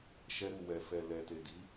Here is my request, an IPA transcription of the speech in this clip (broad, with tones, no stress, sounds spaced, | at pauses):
ʃ ɛ˧ ɾ u˨ w ɛ˨ f ɛ˨ l ɛ˨ t e˨ d i˨˦